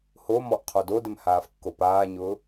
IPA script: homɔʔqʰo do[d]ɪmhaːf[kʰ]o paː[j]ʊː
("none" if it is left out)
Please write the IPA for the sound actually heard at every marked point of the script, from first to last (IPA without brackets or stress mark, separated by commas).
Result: d, kː, ɲ